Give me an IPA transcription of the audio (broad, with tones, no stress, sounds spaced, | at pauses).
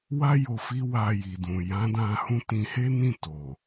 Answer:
w a˦ j o˧ f i˦ w a˧ j i˨ d ũ˨ j ã˨˦ d ã˧ h ũ˦ t ĩ˧ h e˦ n ĩ˦˨ t o˨